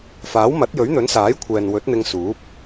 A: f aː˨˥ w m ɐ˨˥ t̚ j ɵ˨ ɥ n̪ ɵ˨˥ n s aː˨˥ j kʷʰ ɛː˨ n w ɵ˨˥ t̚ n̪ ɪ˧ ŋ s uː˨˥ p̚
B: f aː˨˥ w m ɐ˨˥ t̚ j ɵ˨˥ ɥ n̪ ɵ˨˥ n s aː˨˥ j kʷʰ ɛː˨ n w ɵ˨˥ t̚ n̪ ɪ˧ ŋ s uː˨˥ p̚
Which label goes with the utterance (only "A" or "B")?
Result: B